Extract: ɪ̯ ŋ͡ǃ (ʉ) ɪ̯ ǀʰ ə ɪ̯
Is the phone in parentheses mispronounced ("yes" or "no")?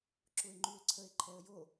no